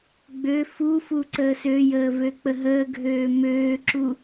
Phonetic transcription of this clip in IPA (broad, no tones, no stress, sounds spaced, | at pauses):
ɡ͡b ø f u f u ǀ əː s ø j əː v ø k͡p ə ɦ əː ɡʱ øː m øː ǁ u